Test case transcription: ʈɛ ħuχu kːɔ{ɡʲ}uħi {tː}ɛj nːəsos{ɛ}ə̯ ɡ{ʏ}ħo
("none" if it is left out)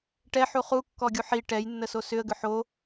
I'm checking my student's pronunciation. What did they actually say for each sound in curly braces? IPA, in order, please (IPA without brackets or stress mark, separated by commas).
ɡʲ, ʈ, ʏ, ʏ